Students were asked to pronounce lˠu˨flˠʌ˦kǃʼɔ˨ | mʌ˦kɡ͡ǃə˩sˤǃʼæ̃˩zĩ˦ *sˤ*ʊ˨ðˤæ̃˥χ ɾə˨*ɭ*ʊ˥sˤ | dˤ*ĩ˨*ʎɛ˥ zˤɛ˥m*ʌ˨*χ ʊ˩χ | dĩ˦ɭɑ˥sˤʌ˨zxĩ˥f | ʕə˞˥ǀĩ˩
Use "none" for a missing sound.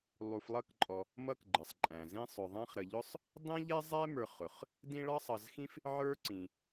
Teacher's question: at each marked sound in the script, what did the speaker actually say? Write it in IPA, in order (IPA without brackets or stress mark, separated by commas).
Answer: sˤ, ʎ, ĩ˥, ə˞˨